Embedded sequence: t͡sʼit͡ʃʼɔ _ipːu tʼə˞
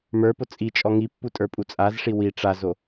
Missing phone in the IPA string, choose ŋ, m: ŋ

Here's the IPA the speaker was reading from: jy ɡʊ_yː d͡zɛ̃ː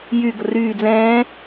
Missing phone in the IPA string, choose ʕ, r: r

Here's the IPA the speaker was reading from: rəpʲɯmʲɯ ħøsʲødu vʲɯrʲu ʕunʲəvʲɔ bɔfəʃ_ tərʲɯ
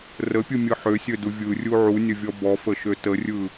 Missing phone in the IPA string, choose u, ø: ø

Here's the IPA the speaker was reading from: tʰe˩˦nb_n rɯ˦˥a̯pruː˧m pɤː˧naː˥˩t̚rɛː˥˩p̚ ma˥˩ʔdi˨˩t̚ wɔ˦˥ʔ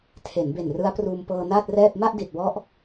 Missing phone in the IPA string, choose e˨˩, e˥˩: e˨˩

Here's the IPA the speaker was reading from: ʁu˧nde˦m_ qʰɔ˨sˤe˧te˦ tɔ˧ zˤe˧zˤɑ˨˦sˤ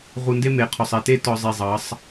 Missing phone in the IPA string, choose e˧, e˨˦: e˨˦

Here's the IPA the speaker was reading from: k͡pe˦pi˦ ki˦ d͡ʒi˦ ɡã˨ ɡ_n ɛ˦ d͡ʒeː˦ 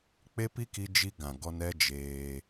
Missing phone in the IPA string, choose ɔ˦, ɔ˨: ɔ˦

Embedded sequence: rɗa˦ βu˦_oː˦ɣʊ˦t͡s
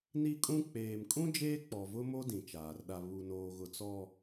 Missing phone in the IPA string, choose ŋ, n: n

